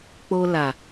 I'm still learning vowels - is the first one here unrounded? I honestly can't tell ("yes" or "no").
no